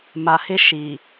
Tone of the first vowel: low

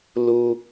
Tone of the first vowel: high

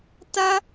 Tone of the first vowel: high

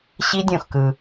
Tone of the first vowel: high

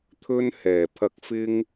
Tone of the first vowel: high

